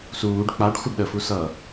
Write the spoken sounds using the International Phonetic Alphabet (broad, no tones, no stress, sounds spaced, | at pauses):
s uː ɖ k͡p a ɖ xʷ ə ɖ ɗ ə f u s ʌ